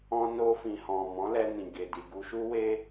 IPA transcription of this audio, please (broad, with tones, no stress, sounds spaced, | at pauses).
ɔ̃˧ n o˧ f ĩ˨ h ɔ̃˨ m ɔ̃˨˦ l ɛ˧ n ĩ˨ ɡ e˨ d i˨ ɡ u˧ ʃ u˦ w e˦